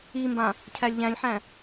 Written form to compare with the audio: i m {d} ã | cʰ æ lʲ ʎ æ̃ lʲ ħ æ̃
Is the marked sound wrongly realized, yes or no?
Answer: yes